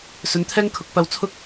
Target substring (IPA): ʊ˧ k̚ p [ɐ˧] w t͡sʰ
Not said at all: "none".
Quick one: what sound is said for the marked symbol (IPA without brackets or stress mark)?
ɐ˧